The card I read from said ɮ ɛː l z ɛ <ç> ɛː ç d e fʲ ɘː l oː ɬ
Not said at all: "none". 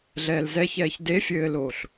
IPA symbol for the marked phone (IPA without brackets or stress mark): ç